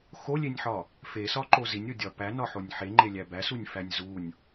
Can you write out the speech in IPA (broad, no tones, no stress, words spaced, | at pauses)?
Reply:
xolʲenʲħɒ | fesɒǃo zinʲodʲɒ pænɒħonʲ ħeŋ͡ǃelʲæ bæsunʲfænʲ zunʲ